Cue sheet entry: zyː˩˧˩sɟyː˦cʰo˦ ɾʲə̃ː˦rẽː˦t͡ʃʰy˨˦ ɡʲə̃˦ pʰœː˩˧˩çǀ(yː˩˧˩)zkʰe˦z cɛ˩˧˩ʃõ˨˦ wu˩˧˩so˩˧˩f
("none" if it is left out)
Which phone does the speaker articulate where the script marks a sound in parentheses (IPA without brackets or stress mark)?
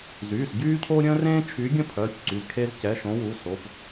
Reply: y˩˧˩